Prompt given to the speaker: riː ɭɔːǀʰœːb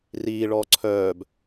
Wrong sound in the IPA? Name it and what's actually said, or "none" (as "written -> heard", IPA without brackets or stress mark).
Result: none